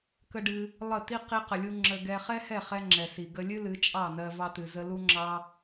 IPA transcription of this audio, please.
k ə˦ ɖ ɨ˦ | lˠ ə˦˨ t i˦ q i˦ q ə˧ lʲ u˦ ŋ͡ǁ ə˧ ɡ ɛ˧ χ ɛ˦ h ɛ˦˨ χ ɛ˧ ŋ͡ǁ ɛ˨ s i˨ ɡ ə˧ lʲ ɨ˦ l ɨ˨˦ t͡ʃʼ ɑ˦˨ n ɜ˧ v ɑ˧ t ɨ˨ z ə˧ l u˦ ŋ͡ǁ ɑ˦

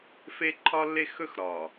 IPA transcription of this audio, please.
f e˦ ǃʰ ɒ˦ lː e˦ x ɵ˦ x ɾ ɒ˨

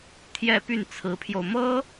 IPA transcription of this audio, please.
t̪ʰ j ɛ˥˧ p y˥˩ n t͡sʰ ɹ̩˧˥ pʰ j o˧ ʊ̯ m ɤ˥

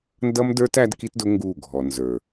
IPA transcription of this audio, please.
n d ʌ˦ m d ə˞˦ t æ˦ d k i˦ t d ʊ˦ ŋ ɡ u˦˨ ɡʱ ɔ˨ n z ə˞˨

